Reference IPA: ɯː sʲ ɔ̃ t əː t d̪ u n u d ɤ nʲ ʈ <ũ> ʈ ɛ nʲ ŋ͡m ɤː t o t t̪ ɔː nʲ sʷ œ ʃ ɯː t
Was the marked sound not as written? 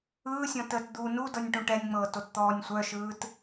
no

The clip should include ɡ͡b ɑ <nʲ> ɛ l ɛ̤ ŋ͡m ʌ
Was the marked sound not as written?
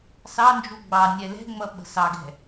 no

